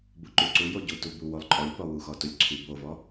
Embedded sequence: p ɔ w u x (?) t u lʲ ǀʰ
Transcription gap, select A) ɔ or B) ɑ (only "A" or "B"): A